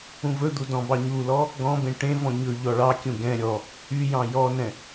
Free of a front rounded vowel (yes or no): no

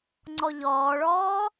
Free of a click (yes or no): no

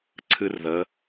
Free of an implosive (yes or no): yes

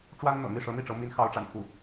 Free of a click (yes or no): yes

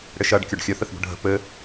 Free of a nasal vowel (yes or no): yes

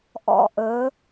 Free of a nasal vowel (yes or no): yes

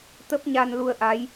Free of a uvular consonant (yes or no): yes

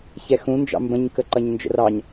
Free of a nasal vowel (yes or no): no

